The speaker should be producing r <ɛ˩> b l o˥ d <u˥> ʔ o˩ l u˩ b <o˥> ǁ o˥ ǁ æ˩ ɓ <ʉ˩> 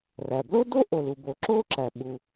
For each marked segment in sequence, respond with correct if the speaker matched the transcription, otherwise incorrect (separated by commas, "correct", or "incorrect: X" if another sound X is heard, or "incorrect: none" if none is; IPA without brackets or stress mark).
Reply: incorrect: æ˩, incorrect: o˥, incorrect: o˩, incorrect: u˩